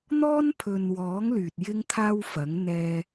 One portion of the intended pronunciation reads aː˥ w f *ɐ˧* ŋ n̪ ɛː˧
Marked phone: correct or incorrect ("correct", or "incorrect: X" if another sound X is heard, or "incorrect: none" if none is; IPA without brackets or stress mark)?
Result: incorrect: ɐ˨˥